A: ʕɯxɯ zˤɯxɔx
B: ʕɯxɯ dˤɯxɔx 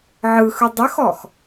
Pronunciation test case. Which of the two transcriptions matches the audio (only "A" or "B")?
B